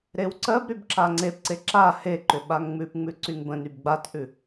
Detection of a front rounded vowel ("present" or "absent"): present